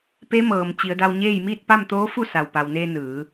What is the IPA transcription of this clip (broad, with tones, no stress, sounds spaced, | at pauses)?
p e˧˥ m ɤː˩ m t͡ɕ i˩˧ ə̯ d a˧ w ɲ eː˥˨ j m iː˥˨ t̚ p a˥˨ m t̪ oː˧˥ f u˥˨ s a˩ w p a˩ w n eː˧ n ɯː˩˧